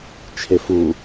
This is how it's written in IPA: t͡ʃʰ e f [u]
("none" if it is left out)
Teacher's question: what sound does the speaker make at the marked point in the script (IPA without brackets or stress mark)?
u